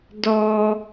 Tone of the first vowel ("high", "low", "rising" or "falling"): high